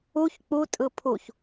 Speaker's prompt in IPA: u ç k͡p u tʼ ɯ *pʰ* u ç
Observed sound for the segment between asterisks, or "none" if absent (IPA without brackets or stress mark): pʰ